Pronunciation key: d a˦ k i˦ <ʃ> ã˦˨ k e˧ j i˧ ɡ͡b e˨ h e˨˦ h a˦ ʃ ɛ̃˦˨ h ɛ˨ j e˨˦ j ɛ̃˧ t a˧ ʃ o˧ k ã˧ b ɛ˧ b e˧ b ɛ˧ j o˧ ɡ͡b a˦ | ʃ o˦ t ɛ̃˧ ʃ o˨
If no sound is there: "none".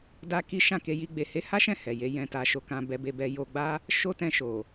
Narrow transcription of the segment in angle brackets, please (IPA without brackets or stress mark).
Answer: ʃ